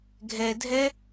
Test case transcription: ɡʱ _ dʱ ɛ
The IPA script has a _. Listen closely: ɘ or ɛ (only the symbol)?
ɛ